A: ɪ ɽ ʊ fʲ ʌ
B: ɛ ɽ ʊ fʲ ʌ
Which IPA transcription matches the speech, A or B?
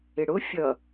A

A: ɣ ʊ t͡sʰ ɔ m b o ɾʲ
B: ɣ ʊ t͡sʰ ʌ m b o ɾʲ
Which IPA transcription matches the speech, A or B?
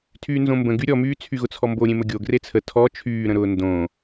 A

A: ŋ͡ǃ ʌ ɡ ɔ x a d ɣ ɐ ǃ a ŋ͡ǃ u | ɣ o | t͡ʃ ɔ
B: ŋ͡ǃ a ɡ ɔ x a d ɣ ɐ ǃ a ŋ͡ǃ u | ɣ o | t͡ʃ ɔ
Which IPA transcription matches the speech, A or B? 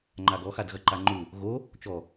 B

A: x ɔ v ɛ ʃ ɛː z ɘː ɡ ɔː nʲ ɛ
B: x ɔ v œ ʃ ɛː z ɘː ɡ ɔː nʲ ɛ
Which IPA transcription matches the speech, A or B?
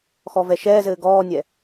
A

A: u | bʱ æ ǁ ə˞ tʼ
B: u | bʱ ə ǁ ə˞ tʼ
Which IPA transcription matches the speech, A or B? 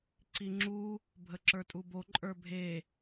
B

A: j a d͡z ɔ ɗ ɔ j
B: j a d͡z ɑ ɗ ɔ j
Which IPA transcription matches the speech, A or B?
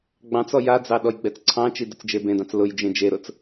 B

